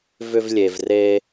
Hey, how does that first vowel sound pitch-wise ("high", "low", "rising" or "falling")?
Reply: high